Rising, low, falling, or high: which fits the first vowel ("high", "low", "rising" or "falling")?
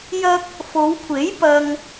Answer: high